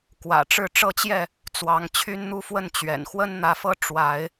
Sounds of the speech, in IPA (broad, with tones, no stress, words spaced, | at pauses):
kwä̰˨˩ʈ͡ʂɻ̩˥˨ ʈ͡ʂɤ˦t͡ɕjɛ˥˨ | t͡swɑ˨˦ŋ t͡ɕʰy˦nn̪u˦fwə˥˨n t͡ɕɥɛ̰˨˩n xwə˦nn̪ä˨˦fɤ˦ ʈ͡ʂwa˨˦ɪ̯